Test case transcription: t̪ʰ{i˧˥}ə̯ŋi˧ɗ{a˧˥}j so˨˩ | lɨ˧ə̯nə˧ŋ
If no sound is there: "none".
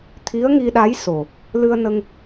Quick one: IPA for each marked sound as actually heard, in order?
i˧˥, a˧˥

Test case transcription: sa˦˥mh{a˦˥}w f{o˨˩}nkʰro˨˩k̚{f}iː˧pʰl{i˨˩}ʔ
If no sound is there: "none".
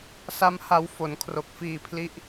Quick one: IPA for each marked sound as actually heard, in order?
a˧, o˩˦, f, i˦˥

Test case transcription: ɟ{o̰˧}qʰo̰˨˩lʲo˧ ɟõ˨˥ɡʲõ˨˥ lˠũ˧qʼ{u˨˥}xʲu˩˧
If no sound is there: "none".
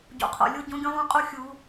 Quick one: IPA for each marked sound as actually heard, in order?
o̰˩˧, u˧

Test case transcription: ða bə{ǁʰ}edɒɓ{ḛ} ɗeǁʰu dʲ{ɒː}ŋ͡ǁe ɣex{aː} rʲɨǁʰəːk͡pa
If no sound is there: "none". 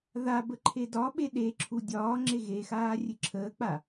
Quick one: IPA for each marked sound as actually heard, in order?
ǃʰ, e, ɒː, aː

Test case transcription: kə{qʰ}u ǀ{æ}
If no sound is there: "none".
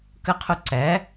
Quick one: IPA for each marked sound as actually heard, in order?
qʰ, æ

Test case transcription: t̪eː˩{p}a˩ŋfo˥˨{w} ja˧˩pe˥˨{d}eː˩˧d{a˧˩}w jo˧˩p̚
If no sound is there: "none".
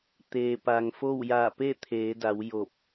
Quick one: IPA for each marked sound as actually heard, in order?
p, w, t̪ʰ, a˩˧

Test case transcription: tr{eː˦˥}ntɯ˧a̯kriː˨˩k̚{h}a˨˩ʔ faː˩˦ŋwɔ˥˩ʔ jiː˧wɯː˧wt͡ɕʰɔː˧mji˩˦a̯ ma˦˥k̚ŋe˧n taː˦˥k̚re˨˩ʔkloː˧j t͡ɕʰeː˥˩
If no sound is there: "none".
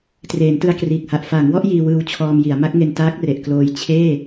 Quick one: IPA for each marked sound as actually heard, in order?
eː˩˦, h

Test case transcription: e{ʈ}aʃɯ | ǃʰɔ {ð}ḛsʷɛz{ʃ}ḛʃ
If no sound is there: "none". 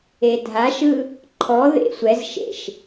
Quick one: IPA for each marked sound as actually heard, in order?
dʱ, ð, ʃ

